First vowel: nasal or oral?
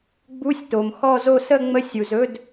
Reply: oral